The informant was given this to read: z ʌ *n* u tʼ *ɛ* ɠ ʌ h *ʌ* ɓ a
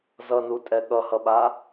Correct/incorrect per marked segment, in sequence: correct, correct, correct

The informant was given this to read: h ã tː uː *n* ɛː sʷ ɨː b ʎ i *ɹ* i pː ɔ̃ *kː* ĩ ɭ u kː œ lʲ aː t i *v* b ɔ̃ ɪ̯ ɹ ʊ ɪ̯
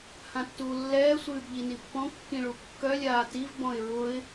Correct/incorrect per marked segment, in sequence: incorrect: lː, incorrect: n, correct, correct

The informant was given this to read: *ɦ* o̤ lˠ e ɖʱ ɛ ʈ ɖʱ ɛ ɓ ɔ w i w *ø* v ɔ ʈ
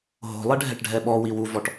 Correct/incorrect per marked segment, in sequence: correct, incorrect: u

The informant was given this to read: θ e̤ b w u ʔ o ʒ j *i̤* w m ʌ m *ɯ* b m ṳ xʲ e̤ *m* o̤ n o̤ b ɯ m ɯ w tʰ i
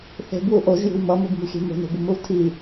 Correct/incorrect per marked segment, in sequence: correct, correct, correct

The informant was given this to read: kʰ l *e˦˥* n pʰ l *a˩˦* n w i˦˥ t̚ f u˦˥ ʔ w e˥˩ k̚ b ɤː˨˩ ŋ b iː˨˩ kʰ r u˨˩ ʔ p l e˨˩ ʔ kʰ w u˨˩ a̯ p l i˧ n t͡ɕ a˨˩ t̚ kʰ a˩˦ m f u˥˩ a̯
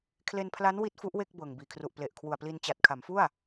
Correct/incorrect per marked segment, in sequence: incorrect: e˧, incorrect: a˦˥

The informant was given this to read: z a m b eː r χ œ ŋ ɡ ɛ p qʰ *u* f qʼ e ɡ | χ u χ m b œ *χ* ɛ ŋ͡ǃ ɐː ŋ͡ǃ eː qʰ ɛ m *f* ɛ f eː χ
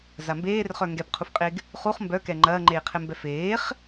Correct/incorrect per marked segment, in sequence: correct, incorrect: k, incorrect: b

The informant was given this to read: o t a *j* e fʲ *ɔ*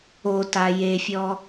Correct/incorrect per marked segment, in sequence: correct, correct

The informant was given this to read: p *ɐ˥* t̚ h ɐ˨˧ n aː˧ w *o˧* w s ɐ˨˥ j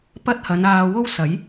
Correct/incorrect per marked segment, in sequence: correct, incorrect: o˥

